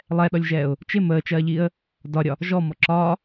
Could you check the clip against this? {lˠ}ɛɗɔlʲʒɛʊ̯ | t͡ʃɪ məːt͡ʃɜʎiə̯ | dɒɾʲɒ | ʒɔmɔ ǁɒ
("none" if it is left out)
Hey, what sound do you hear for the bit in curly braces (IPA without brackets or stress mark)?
lˠ